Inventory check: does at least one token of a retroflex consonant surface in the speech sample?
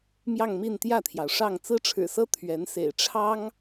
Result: yes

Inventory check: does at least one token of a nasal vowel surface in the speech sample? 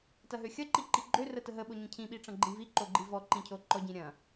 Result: yes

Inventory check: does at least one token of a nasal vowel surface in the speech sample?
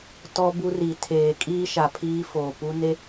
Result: no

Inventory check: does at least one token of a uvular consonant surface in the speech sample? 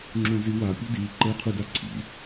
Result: yes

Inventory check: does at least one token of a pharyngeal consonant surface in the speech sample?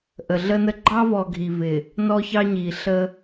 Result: no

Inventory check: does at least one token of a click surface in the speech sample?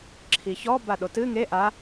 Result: yes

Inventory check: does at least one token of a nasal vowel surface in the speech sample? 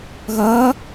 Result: no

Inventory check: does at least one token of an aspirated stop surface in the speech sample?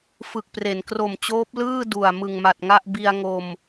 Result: no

